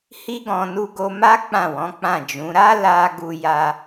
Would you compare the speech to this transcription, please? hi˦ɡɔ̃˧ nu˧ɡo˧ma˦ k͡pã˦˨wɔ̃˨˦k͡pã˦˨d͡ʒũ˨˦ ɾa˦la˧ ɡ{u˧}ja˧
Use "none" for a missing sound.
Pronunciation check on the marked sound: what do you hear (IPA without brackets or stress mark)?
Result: u˧